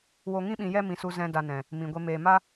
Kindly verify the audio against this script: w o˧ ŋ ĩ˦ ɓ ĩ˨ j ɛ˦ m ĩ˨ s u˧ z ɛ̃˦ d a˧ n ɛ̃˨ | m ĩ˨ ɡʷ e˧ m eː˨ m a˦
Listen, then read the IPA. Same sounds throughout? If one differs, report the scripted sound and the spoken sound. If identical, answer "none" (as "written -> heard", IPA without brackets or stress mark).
none